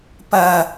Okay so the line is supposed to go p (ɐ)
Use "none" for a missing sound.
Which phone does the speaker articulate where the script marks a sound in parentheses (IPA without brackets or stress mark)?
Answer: ɐ